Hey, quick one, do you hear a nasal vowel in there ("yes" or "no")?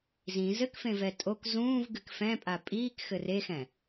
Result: yes